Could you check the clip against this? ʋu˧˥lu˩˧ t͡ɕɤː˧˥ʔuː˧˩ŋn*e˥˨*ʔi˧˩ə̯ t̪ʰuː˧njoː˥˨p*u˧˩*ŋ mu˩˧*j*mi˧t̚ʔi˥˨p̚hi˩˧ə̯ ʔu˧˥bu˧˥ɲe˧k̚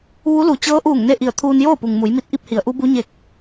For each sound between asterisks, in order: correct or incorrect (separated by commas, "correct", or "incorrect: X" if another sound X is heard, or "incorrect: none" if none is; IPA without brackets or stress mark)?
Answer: correct, incorrect: u˩, correct